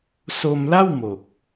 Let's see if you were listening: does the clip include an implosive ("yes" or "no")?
no